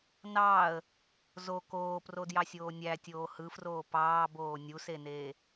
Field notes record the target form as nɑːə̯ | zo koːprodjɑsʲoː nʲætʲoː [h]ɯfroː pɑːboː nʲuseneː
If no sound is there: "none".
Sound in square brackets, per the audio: h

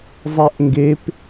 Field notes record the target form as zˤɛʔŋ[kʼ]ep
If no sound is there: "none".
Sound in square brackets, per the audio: ɡ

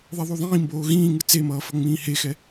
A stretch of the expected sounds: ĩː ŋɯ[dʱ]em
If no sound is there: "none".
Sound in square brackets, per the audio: t͡s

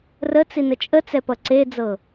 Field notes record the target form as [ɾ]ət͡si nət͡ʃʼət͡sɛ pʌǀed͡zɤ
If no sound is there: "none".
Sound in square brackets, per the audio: r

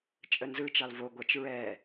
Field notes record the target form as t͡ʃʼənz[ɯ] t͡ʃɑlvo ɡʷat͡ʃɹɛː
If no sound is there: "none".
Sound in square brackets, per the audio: ɯ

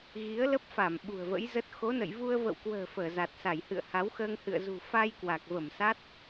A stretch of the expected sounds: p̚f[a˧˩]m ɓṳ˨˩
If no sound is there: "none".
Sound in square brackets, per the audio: a˧˩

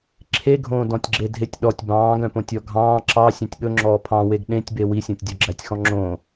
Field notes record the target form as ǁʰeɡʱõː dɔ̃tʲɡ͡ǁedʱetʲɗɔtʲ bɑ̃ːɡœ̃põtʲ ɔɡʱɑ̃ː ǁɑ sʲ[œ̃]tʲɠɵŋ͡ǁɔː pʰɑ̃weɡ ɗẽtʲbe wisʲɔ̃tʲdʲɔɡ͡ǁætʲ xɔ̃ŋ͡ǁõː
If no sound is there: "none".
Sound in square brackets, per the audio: œ̃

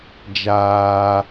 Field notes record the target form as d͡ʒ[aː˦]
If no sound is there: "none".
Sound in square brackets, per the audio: aː˦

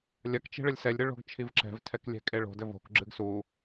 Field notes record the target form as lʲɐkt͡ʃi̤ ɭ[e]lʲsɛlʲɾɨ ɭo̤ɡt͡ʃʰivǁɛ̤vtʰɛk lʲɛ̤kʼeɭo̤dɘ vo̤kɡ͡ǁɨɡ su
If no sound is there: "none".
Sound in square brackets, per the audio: ɘ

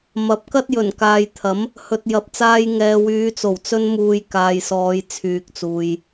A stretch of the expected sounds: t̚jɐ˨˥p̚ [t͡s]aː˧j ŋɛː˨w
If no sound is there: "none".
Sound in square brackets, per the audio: t͡s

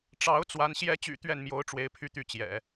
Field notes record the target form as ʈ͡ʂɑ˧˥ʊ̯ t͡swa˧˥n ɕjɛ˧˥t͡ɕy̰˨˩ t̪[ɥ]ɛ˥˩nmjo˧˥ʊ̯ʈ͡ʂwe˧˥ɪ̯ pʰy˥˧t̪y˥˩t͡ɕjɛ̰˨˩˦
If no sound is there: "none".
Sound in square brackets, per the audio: ɥ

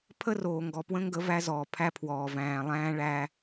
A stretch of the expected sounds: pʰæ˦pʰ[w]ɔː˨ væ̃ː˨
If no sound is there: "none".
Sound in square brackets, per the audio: w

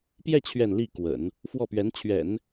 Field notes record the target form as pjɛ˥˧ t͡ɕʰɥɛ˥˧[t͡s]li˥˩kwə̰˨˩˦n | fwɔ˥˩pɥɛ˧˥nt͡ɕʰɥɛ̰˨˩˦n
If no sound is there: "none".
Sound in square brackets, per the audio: n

